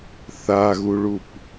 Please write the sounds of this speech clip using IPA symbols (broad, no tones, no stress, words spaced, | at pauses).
θaɣuɭup